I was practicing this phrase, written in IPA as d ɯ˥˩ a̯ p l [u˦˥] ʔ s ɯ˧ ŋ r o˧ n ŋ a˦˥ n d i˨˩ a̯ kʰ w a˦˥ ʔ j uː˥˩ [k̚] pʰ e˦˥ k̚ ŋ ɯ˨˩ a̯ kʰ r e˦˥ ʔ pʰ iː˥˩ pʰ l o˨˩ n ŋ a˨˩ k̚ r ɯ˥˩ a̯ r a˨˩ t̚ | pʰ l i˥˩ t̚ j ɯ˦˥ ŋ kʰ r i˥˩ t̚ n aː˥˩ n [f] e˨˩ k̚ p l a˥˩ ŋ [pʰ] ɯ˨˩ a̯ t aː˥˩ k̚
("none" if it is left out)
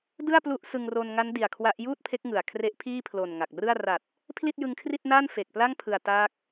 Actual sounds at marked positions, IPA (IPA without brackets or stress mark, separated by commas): u˦˥, t̚, f, pʰ